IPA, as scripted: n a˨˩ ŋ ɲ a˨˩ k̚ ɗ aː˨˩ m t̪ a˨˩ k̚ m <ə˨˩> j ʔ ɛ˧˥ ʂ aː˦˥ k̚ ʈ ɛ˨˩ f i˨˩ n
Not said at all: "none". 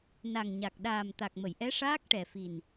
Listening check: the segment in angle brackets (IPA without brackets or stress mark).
ə˨˩˨